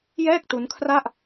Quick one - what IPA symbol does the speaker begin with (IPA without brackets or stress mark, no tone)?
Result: j